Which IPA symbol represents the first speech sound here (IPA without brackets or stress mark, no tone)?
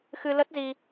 x